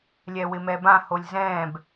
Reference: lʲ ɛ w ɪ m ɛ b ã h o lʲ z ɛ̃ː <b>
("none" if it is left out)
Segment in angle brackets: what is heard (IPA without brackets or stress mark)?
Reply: b